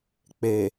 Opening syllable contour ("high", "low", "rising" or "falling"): low